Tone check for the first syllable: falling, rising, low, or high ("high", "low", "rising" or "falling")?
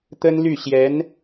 high